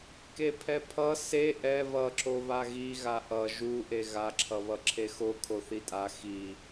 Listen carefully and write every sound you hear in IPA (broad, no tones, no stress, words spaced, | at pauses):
kepʰɛpʰʌ se ʔɛ βʌǁo βaɣiɣa ʔʌ ʒuʔe ɣaǁʰʌβʌ ǁʰexo kʰoθitʼa xi